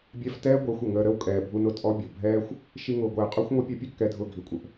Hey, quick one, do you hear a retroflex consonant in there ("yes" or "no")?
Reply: no